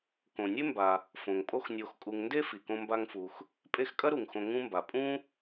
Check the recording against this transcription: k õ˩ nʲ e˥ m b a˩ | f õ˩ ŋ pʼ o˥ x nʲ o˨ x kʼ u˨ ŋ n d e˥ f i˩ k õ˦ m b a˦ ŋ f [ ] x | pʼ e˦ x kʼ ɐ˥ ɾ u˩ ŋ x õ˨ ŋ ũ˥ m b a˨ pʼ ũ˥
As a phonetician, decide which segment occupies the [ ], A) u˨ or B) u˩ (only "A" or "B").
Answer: A